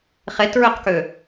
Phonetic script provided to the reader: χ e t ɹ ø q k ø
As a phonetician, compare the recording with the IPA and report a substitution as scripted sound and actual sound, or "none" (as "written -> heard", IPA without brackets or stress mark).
none